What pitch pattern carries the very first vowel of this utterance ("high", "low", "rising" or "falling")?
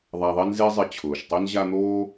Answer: low